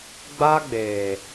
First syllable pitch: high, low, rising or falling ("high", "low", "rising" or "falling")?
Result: high